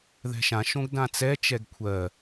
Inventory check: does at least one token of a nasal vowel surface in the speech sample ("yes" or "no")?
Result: yes